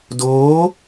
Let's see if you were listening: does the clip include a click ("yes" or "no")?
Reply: no